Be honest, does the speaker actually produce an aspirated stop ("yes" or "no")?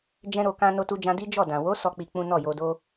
no